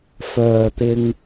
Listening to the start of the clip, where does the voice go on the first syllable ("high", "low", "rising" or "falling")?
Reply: low